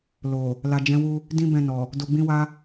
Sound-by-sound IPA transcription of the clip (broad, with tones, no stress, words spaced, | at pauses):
lo˨ | la˨d͡ʒɛ̃˨˦wu˧ | dĩ˦bɛ̃˧nɔ˨ | do˧ɡ͡bĩ˦wa˦